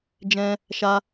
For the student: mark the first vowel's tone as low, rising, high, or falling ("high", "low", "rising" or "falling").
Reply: high